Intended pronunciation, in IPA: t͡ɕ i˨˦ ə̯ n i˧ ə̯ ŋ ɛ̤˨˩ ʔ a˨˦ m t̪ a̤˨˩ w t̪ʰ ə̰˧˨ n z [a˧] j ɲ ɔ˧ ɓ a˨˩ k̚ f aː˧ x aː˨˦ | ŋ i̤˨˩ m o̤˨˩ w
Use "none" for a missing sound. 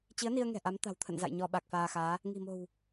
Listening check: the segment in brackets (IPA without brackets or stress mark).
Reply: a̰˧˨